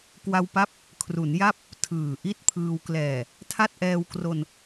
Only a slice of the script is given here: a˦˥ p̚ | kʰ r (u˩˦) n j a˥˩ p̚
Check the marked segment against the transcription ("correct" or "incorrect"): correct